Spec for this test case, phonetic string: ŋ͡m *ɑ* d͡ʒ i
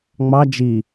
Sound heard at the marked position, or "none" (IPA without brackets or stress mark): ɑ